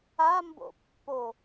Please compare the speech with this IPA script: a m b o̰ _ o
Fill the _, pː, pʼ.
pː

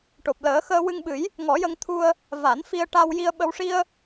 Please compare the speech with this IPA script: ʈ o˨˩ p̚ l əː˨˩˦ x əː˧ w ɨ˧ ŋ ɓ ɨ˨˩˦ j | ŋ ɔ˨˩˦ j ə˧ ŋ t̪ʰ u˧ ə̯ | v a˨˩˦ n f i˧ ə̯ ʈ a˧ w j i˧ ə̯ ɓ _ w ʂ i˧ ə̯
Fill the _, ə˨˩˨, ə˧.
ə˧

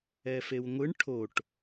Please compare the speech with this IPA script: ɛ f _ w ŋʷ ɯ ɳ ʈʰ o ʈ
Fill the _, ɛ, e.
e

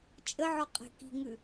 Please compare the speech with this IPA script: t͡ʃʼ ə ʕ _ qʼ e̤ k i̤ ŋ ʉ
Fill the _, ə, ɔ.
ɔ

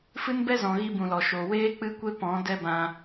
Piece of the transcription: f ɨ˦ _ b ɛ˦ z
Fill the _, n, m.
n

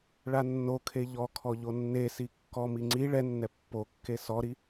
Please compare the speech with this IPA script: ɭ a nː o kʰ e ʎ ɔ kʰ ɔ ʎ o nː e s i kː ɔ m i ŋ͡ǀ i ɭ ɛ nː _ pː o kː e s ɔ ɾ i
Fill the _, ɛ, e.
ɛ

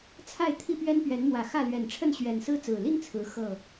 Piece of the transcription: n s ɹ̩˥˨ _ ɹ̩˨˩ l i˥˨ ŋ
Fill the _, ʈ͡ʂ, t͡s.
t͡s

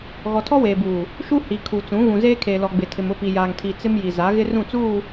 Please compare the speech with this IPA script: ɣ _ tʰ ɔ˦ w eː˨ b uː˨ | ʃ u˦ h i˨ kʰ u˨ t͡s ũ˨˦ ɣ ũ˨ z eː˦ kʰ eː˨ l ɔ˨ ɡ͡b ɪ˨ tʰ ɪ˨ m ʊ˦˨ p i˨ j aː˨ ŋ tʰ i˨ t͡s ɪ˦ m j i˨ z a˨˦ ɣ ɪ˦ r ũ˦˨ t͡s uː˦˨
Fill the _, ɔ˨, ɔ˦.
ɔ˨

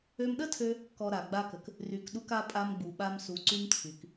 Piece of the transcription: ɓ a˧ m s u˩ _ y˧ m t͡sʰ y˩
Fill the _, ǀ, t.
ǀ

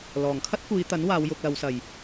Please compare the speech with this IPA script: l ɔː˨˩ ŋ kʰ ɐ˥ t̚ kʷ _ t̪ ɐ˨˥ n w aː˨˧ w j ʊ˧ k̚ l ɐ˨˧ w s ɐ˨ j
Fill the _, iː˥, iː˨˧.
iː˨˧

